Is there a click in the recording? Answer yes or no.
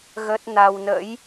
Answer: no